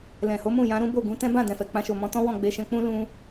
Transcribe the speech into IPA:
l ɛ̃˨ h o˨˦ m ũ˦˨ j ã˨˦ ɾ ũ˦ b o˦˨ ɡ ũ˧ t ɛ̃˦ b ã˦˨ d ɛ̃˨ f ɛ˨ k͡p ã˧ ʃ o˨ m ɔ̃˨˦ t ɔ̃˦ w ɔ̃˦˨ ɡ͡b e˧ ʃ ɛ̃˧ k͡p ũ˦ l ũ˧

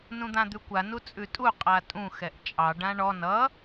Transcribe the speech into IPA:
n ũ d̪ ã d̪ ʉ kʷ a n u t͡sʼ ʉ tʼ u qʼ a tʼ ũ x ɛ ʔ t͡ʃʼ ɑ ɖ ã ɳ ɔ n ʌ

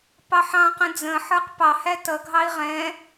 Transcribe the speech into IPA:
p ɑ ħ ɑ̃ q ə̃ d͡z ə̃ ħ ə˞ q p ɑ h æ t ʌ ɡʱ ɑ i̯ ʁ ɛ̃

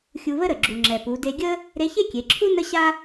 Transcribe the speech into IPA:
xʲ u˧ β ə˥ ɾ ə˩ ɡ͡ǁ u˩ ŋ͡ǁ ɛ˩ p u˩˧ d e˧ ɡʲ ə˥ | ɾ e˧˥ ç e˥ kʲ e˩˧ ǁʰ u˥ n ə˥ ɕ a˥

